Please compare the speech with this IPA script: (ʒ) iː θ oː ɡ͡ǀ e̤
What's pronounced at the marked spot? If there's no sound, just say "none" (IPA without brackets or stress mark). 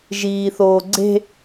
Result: ʒ